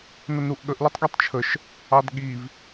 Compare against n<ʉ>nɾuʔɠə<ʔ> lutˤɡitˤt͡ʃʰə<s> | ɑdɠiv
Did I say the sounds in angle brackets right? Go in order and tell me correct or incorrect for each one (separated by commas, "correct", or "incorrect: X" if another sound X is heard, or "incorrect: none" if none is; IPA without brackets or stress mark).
incorrect: ə, correct, incorrect: ʃ